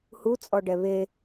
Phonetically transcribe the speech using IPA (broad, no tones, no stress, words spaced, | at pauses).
hut͡sʼɔɖɛ βe